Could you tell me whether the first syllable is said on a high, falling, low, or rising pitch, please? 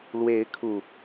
rising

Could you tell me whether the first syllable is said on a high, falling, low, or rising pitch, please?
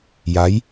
rising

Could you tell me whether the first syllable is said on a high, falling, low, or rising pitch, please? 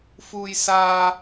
high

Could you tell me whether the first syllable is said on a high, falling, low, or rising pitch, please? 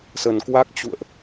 low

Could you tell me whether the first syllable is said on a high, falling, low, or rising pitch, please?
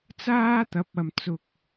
high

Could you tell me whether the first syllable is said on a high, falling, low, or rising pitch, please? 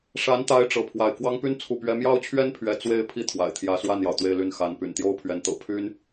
rising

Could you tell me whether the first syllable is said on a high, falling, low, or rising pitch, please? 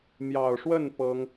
low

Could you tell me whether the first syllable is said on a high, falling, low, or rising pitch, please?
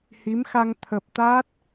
rising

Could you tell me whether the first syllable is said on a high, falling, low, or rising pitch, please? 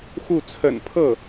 falling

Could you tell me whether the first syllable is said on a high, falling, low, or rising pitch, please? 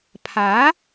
rising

